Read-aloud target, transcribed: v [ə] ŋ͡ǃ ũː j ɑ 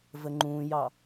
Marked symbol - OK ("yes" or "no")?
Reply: yes